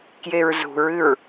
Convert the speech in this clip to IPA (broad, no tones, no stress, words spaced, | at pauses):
kjeɹzṳɹɨɹ